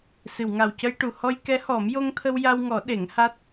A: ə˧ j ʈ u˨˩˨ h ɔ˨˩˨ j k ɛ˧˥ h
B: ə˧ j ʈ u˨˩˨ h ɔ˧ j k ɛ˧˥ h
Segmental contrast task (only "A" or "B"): B